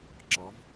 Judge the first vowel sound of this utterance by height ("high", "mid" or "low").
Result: low